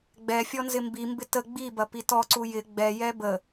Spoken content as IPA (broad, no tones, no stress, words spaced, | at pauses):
ɡ͡bɛ fʲɔnzɪmbimbɪ tə ɡ͡bibɐ pitɔǀu jɪ ɡ͡bɛjɛ bə